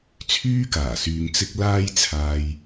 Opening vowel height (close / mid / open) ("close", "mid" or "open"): close